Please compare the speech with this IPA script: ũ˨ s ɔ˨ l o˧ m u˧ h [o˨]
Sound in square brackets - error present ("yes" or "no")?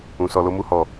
yes